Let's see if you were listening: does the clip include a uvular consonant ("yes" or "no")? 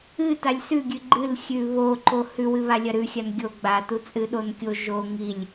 no